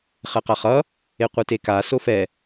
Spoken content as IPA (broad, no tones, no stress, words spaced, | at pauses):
χɛqaχʌ | eqʷɯteka sofɛ